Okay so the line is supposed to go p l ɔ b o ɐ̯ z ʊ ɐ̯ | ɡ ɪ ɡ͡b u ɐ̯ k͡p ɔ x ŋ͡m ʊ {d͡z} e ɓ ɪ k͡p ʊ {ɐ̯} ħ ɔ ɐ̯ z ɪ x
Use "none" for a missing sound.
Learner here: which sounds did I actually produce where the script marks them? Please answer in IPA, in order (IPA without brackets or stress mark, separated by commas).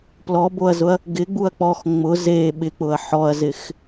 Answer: z, ɐ̯